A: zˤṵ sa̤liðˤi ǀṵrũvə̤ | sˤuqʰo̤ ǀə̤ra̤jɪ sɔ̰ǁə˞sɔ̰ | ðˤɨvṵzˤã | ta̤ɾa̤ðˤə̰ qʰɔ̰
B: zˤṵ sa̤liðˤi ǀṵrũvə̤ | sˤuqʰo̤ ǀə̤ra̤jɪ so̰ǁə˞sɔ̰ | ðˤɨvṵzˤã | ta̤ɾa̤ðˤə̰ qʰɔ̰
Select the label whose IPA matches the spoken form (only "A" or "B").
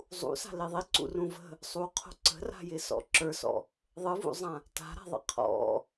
A